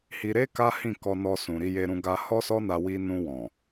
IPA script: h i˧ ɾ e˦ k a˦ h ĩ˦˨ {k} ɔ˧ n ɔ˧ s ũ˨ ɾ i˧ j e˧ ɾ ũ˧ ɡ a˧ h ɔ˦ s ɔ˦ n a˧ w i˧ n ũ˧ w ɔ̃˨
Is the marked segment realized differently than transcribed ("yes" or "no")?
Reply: no